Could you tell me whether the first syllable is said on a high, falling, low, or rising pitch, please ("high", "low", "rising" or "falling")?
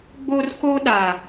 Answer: high